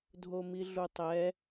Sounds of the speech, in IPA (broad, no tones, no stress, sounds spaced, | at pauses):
dʱ o m i ɮ u tˤ ɛ